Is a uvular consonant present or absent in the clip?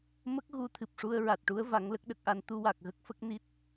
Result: absent